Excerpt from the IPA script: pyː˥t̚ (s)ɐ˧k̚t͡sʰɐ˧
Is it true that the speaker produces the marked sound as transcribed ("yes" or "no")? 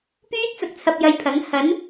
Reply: no